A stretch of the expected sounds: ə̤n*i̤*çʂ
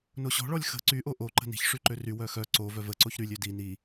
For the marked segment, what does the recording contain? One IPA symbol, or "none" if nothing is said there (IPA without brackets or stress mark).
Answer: i̤